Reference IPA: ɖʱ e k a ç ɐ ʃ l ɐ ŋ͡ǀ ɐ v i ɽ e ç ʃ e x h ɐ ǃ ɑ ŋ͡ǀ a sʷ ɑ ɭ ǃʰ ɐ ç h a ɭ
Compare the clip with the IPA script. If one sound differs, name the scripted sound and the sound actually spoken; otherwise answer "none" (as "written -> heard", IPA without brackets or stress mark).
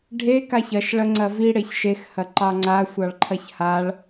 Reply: l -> ɭ